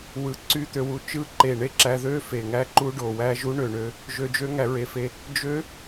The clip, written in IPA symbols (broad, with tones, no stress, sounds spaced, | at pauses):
w ɯ˧˩ ǀ y˦˥ t̪ ø˧ w u˧ t͡ʃ ɯ˦˥ ǃ e˧˩ ɳ e˦˥ ǁ æ˧ ð ø˦˥ f e˧˩ ŋ æ˦˥ ǃ u˦˥ ɖ o˧˩ w æ˦˥ ʒ u˦˥ ɳ ø˧˩ ɳ ø˧ | ʒ ø˧ d͡ʒ ø˦˥ ŋ æ˧ ɹ e˧˩ f e˧ | d͡ʒ ø˦˥